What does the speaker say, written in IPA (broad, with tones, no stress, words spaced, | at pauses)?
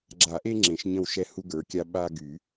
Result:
ɡ͡ǁa˨˩˦ʔe˦ ŋ͡ǁẽ˨˩˦ʃɲə̃˦˨w ʃɛ˦ hu˦ɡə˞˨˦kʲa˦ ɓa˦ɡy˨˩˦